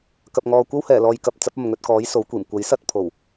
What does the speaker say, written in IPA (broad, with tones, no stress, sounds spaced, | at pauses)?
k ɐ˨ p̚ ŋ ɔː˨ kʷ ɐ˥ w h ɛː˨˩ l ɔː˨ j k ɐ˨ p̚ t͡s ɐ˨˥ p̚ ɐ˨ m ŋ ɵ˧ t̚ k ɔː˨˥ j s o˨˥ w kʷ iː˨˩ m kʷ ɐ˨˥ j s ɐ˧ t̚ pʰ o˨˩ w